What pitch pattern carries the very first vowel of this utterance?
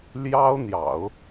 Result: high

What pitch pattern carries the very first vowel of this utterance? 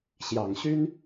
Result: low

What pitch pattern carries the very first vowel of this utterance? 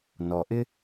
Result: low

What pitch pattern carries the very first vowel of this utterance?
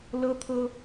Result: high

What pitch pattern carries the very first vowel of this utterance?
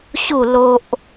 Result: falling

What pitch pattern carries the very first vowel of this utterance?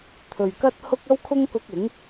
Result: low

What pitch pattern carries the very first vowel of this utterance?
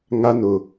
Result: high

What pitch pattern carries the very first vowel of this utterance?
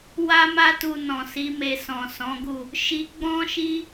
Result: high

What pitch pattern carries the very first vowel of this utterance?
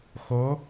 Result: rising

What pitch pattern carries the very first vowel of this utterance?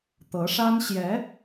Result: rising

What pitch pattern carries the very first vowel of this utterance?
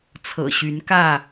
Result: low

